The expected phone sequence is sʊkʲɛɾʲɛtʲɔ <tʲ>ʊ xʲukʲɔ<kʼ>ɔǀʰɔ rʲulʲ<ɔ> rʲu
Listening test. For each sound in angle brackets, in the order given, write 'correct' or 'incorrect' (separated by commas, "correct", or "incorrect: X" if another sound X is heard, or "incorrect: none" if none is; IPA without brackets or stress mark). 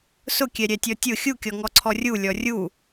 correct, incorrect: ŋ, correct